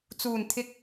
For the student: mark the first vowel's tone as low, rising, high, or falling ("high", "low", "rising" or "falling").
low